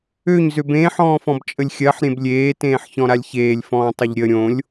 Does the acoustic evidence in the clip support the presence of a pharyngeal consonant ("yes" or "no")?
yes